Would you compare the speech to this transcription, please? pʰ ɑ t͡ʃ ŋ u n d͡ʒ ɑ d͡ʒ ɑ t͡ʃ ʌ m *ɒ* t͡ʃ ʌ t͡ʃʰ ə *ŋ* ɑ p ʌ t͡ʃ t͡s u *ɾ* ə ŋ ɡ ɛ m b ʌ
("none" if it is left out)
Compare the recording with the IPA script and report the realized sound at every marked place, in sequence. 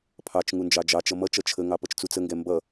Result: ʌ, ŋ, t͡s

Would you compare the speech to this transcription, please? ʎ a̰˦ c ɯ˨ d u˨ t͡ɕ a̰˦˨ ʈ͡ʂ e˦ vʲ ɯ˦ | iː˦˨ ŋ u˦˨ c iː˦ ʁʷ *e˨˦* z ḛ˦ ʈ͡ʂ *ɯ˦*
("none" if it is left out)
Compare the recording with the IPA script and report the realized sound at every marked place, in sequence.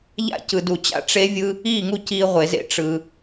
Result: e˨˦, ɯ˦

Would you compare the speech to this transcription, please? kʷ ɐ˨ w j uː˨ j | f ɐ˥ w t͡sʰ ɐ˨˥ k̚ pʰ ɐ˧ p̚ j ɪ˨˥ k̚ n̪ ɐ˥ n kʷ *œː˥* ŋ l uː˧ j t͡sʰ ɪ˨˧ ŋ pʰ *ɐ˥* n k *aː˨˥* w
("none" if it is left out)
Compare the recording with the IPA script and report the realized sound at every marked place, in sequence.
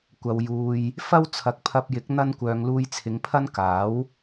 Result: œː˧, ɐ˥, aː˨˥

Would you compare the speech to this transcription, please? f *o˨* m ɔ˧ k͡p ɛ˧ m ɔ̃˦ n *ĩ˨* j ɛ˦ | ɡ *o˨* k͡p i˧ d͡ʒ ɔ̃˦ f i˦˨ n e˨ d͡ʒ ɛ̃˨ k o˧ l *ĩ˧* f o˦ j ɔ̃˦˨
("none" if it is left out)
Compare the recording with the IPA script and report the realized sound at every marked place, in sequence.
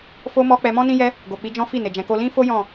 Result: o˧, ĩ˦, o˨, ĩ˦

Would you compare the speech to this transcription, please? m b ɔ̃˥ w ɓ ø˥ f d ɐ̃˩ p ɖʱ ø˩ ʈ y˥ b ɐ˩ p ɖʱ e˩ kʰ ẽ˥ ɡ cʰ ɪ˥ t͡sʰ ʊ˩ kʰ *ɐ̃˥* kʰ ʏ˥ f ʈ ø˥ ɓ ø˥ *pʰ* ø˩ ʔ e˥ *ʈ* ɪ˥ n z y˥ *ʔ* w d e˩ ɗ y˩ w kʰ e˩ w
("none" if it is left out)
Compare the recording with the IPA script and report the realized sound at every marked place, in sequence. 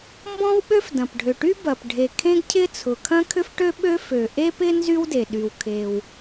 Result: ɐ̃˥, f, p, none

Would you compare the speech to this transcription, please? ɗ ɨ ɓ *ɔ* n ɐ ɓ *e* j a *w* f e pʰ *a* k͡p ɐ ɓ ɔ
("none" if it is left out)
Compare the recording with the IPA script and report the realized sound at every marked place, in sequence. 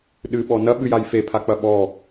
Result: ɔ, ɨ, j, a

